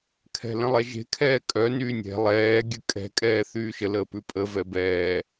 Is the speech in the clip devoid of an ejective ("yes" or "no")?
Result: no